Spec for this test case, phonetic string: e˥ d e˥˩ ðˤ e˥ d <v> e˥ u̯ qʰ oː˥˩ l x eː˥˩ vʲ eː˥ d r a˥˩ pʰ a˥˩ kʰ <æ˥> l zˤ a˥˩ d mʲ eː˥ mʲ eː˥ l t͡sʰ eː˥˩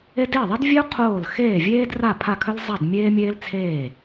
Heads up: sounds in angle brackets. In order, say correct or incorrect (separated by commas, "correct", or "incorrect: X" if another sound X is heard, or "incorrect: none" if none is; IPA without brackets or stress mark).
incorrect: vʲ, incorrect: œ˥